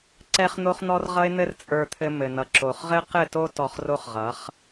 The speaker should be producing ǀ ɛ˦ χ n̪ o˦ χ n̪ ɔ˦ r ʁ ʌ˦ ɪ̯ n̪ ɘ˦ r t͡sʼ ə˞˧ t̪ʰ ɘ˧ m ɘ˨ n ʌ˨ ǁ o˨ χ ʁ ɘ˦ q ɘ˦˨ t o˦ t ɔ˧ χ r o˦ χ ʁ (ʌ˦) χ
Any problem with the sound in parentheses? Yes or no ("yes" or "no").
yes